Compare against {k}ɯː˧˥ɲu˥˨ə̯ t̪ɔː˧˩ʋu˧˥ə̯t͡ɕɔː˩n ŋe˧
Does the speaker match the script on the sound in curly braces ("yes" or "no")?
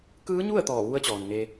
yes